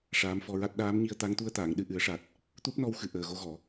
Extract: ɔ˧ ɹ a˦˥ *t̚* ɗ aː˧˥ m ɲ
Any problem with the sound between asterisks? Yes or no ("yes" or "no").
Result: no